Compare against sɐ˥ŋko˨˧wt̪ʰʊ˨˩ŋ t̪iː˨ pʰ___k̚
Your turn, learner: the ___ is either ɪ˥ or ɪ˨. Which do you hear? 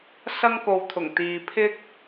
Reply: ɪ˥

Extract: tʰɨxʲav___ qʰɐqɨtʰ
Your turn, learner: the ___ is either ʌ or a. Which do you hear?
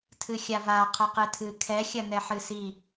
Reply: a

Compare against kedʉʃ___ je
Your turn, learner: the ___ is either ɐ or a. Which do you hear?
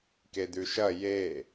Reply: ɐ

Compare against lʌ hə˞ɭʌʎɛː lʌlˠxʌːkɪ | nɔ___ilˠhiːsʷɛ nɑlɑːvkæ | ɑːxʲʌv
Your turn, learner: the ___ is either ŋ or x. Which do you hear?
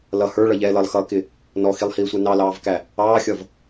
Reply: x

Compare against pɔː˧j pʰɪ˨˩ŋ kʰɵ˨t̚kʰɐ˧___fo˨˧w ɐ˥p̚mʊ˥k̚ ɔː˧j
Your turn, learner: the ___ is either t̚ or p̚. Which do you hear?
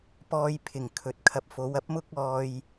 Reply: p̚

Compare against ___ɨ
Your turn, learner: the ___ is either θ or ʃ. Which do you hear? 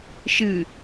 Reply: ʃ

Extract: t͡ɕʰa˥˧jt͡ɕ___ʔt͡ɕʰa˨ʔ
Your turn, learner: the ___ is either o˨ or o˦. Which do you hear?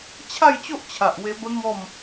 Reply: o˦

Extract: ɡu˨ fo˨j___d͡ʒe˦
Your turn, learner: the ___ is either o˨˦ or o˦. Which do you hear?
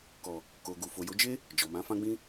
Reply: o˨˦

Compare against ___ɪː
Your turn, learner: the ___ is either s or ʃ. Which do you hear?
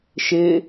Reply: ʃ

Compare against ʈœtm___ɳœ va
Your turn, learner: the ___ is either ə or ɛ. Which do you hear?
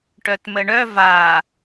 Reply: ə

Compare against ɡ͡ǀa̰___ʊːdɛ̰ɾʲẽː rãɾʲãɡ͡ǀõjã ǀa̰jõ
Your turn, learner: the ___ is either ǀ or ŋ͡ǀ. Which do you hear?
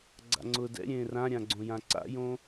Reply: ŋ͡ǀ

